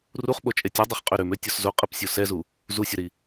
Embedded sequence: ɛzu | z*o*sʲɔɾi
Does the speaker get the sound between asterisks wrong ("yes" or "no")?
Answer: yes